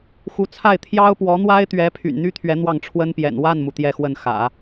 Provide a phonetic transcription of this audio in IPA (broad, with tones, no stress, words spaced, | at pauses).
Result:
xu˧˥t͡sʰa˥˩ɪ̯ t̪ʰjɑ˥ʊ̯pwɔ˧˥n̪wa˥ɪ̯t̪ɥɛ˧˥ pʰy̰˨˩nn̪y˥t̪ʰɥɛ˧˥ n̪wɑ˥˩ŋʈ͡ʂʰwə˥npjɛ̰˨˩n wa˥˩nmu˩ t̪jɛ˥˧xwə˥˩nxä̰˨˩˦